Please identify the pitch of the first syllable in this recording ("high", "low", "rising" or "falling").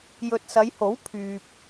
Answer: low